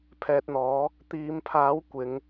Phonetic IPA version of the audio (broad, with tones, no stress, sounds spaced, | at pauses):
pʰ ɛː˧ t̚ n̪ ɔː˨˥ | t̪ iː˨˧ m pʰ aː˨˥ w kʷ ɪ˨˥ ŋ